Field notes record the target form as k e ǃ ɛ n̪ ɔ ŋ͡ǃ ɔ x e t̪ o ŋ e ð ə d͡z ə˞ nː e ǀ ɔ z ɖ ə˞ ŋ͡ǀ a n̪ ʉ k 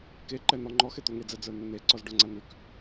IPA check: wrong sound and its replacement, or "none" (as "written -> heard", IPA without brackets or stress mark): ð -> d͡z